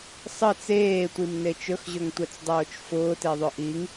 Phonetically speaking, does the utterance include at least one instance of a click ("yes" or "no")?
no